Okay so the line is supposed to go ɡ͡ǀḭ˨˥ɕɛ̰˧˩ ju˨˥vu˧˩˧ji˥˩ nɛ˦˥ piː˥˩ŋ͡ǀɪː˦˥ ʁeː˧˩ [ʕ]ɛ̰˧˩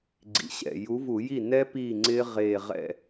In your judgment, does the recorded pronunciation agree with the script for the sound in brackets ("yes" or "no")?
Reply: no